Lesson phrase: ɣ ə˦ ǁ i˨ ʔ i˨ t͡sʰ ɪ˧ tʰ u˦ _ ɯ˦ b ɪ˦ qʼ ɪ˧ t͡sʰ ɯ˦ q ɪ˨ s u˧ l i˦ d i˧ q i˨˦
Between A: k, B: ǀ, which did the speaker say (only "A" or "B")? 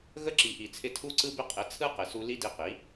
B